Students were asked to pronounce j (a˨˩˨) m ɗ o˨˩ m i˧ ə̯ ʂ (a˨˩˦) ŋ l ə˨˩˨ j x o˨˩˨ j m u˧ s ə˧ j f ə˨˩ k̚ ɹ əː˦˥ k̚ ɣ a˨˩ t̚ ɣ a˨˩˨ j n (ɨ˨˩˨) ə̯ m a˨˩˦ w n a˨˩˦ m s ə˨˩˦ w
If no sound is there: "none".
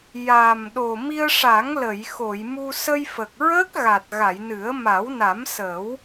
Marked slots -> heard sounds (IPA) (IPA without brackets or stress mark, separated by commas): a˨˩, a˨˩˦, ɨ˨˩˦